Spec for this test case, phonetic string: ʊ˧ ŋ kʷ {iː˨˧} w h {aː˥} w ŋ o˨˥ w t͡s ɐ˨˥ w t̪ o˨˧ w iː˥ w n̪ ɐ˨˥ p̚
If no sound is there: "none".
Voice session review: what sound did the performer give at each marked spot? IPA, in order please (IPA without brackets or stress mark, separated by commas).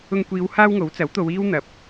iː˨˧, aː˥